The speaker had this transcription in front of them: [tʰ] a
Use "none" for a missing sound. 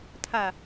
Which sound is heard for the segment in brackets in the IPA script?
tʰ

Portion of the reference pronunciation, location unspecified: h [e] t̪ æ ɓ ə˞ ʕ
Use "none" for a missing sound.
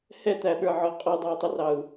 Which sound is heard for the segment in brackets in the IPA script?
ɛ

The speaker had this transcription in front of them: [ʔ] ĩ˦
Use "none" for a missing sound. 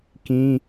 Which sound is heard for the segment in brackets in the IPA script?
k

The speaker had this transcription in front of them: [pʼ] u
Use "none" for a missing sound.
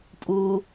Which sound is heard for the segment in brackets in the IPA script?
pʼ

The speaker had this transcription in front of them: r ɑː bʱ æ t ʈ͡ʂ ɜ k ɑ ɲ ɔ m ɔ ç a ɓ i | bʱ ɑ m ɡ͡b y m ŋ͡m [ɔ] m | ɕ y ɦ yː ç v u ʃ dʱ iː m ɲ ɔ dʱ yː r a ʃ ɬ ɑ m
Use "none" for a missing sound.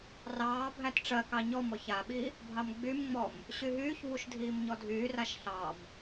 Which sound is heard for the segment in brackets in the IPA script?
ɔ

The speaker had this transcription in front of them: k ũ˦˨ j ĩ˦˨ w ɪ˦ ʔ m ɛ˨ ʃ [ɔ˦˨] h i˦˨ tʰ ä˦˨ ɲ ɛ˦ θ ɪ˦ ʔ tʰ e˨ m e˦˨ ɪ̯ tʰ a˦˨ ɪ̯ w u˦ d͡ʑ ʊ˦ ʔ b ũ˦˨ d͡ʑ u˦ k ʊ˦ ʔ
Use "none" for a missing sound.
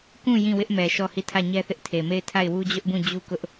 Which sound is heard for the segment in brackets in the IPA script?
ɔ˦˨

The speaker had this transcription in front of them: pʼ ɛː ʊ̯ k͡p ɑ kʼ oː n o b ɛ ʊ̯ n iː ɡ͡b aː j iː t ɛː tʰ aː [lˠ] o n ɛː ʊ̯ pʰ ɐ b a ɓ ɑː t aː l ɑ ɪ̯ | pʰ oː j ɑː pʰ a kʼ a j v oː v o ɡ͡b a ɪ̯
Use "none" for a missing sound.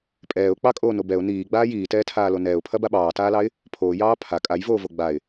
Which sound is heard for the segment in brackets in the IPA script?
l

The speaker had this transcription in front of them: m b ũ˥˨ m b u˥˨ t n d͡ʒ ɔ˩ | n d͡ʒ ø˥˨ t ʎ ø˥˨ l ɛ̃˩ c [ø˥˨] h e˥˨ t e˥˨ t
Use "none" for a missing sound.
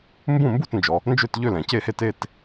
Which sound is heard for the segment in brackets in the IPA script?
e˥˨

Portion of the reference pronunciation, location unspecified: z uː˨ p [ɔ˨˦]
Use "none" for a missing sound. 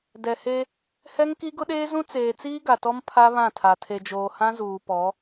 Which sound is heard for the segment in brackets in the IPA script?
ɔ˨˦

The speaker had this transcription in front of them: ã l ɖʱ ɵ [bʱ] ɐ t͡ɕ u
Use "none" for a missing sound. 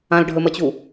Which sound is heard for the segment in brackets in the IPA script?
m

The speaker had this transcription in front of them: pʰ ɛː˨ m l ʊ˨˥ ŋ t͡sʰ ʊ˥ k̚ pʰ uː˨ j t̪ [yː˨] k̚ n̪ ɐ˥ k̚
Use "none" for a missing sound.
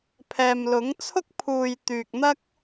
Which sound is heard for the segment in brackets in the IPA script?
yː˨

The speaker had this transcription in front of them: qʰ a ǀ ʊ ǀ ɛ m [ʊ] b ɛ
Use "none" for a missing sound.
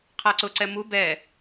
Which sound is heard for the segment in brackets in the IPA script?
u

